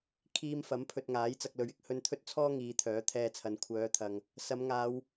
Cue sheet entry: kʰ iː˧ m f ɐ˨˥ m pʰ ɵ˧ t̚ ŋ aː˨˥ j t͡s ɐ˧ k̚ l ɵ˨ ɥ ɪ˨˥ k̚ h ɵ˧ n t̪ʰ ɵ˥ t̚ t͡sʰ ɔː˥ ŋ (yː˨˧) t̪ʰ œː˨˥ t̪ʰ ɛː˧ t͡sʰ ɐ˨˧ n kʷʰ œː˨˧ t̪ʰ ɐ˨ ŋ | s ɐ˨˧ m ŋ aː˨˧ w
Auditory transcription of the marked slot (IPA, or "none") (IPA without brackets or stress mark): iː˨˧